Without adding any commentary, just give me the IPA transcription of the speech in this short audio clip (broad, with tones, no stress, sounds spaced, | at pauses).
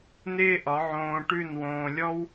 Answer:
n̪ ɪː˦ ʔ ɒ˨˦ ʕ õː˧ ʈ ʉ˦˨ n w õː˧ lʲ ɔ˦ w